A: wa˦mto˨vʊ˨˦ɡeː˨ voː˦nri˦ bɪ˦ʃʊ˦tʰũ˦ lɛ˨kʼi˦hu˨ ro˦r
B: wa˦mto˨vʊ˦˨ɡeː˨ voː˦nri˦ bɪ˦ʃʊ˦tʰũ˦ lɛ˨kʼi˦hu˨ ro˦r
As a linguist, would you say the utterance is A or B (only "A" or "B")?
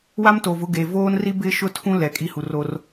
A